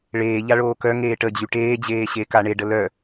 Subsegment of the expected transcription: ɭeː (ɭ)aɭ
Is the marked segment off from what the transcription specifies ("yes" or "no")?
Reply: yes